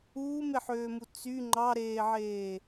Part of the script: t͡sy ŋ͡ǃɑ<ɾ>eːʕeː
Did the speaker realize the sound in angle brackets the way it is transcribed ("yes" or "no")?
yes